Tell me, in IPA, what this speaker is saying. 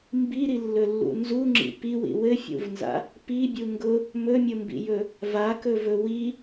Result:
m b i ɾ i lː ɵ lː ṵ n z u ŋ͡ǁ ḭ p i w ḭ w ɘ fʲ ṵ v n z a̰ | p i bʲ u ŋ ɡ ʊ | m ɵ mʲ ʊ m b ḭ j ɵ | v a k ɵ v ɵ w i

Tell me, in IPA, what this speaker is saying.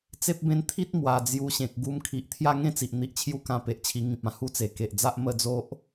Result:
t͡s e˦ p̚ b ẽ˦ n t̪ʰ i˦ t̚ m w a˨˩ d͡z j u˧ ɕ ẽ˨ k̚ ɡ u˧ m kʰ i˨ ʔ t̪ʰ j a˥˧ ŋ ẽ˥˧ t͡s i˨ ʔ n̪ i˨ ʔ t͡ɕʰ j u˦ k ã˧ p e˨ ʔ t͡ɕʰ i˧ ŋ ĩ˨ p̚ ã˧ h u˥˧ t͡s e˨˩ k e˨ ʔ d͡z a˦ ʔ m ə˥˧ d͡z o˦ ʔ

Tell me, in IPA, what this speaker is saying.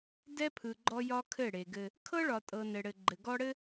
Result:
d ɛ˦ pʰ ɯ˨ ɡ͡ǃ ɔ˦ j ɒ˦ kʰ ɘ˦˨ ɽ e˨ ɡ ɘ˦ | kʰ ɤ˦ ɭ ɒ˨ tʼ ɤ˨ n ɘ˨ ɽ ɘ˨ ɡ͡ǃ ɘ˨ ɡ ɔ˦ ɽ ɘ˦

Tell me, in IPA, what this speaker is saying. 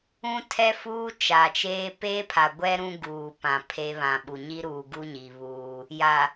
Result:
ũ˦ tʰ ɛ˦ f uː˦ t͡ʃ a˨ t͡ʃ eː˦ p eː˦ pʰ a˨ ɡʷ ɛ˦ ɾ ũ˦ ɡ uː˨ p ã˨ pʰ e˦ β ã˨ ɓ u˨ ɲ i˦ ɾ uː˨ ɡ u˦ ɲ i˨ β uː˦ | j a˨

